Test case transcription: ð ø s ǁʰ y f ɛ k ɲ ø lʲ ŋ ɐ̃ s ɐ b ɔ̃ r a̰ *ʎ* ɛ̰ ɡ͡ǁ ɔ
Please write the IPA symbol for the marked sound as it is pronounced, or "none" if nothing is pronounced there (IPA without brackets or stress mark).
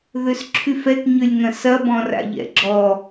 ʎ